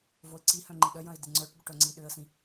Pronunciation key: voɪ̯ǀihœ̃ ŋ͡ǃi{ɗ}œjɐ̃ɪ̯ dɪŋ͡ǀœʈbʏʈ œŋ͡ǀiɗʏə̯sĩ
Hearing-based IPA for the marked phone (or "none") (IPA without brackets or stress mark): ɗ